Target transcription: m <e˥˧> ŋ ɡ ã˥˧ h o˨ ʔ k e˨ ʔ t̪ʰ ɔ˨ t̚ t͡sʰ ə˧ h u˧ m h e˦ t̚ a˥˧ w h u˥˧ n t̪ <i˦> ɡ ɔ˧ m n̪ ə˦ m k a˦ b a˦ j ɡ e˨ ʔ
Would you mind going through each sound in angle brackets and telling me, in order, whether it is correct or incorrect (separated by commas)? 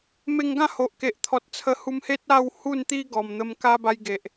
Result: incorrect, correct